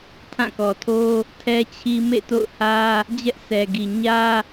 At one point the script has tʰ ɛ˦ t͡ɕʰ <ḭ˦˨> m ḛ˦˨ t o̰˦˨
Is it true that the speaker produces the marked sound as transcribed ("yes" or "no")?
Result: no